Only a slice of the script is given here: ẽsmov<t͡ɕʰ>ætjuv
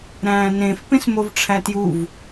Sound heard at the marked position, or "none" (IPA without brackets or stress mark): ʈ͡ʂʰ